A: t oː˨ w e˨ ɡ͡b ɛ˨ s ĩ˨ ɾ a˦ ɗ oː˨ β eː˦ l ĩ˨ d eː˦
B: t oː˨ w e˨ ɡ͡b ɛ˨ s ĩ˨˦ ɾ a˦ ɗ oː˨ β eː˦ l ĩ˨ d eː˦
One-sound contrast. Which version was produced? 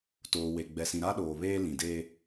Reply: A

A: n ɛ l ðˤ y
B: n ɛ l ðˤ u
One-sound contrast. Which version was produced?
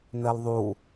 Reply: B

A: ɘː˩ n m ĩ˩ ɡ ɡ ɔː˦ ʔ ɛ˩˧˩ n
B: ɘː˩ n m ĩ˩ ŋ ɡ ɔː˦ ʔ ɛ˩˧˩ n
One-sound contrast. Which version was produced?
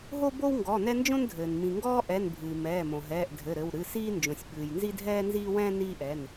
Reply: B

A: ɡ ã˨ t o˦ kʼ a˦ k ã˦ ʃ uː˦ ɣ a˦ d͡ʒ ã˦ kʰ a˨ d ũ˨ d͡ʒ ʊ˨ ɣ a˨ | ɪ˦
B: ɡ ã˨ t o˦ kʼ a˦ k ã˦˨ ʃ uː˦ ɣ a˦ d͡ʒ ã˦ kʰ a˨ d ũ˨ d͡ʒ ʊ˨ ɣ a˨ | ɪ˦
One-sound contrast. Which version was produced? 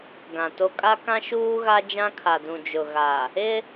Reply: A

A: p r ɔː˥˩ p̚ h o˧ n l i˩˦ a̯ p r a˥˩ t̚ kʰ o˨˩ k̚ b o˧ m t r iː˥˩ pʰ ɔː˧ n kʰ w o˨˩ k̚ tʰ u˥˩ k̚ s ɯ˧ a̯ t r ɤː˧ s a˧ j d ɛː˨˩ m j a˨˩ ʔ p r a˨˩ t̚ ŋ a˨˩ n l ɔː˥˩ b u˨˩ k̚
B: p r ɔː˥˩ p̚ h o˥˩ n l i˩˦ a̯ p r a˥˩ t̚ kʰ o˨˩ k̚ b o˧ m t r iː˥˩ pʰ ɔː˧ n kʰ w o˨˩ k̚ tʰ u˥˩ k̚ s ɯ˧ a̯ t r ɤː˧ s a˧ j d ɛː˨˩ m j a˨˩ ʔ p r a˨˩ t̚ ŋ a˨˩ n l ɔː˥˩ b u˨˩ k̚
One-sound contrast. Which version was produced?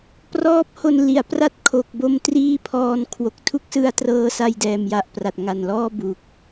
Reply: A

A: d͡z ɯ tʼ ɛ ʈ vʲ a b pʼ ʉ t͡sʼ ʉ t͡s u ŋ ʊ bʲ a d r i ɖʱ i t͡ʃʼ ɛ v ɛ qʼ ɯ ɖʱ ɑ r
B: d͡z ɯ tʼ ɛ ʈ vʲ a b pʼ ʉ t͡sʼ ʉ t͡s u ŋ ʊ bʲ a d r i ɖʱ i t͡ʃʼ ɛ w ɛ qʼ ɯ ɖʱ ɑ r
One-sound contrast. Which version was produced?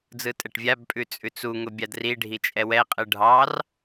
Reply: B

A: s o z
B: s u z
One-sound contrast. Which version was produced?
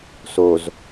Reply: A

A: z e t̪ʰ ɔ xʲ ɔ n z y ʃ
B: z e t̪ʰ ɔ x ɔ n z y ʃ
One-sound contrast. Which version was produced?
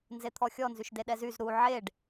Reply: A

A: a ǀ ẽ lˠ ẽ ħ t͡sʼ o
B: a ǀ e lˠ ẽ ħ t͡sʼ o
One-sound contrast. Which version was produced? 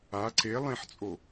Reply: B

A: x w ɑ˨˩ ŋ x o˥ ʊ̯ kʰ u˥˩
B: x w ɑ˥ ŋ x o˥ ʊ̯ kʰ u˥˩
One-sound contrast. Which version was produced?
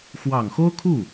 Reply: A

